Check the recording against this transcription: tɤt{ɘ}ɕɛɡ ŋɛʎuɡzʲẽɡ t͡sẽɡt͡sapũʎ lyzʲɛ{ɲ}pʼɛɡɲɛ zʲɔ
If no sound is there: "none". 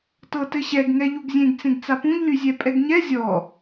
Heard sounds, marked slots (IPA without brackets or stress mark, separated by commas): ɘ, none